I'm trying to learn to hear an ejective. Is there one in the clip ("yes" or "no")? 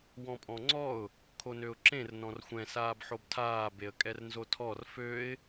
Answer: yes